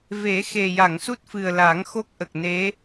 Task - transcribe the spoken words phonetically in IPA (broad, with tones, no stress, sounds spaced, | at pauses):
v e˨˩˦ x e˨˩ j a˨˩˨ ŋ s u˦˥ t̚ f ɨ˨˩ ə̯ l aː˨˩˦ ŋ x o˦˥ k̚ ʔ ə˨˩ k̚ n e˧˥